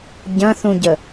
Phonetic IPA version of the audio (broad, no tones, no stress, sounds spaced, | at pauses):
ɟ ɐ̃ θ ũ ɟ ə